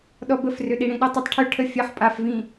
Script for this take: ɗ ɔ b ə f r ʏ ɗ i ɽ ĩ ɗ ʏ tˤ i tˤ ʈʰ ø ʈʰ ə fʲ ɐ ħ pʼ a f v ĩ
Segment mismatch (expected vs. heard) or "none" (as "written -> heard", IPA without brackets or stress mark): none